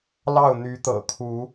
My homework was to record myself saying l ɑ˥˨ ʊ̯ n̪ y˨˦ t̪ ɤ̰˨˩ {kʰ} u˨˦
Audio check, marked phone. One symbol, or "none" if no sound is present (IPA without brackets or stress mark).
kʰ